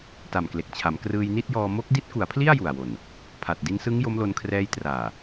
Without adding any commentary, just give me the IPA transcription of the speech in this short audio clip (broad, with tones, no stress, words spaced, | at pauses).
ta˨˩mkle˨˩k̚t͡ɕʰa˩˦m krɯː˧jni˥˩t̚jɔː˧ mo˦˥k̚di˦˥t̚ku˩˦a̯pʰli˥˩a̯ ju˨˩a̯wo˨˩n | pʰa˨˩t̚ di˧nsɯ˦˥ŋ jo˦˥mlo˧nkʰrɛː˦˥j traː˨˩